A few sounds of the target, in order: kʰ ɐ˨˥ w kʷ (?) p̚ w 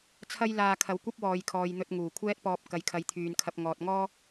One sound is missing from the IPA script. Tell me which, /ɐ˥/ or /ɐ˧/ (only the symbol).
ɐ˥